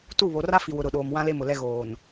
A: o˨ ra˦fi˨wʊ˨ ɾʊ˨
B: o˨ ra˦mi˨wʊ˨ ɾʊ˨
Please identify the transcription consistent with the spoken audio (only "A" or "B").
A